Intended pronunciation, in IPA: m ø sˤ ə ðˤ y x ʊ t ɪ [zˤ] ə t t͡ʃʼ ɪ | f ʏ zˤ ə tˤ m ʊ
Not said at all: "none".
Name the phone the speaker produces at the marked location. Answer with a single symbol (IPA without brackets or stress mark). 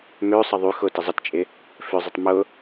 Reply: zˤ